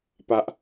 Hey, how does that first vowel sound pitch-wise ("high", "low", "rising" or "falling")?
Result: low